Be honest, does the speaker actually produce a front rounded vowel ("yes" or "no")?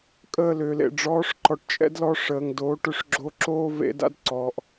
yes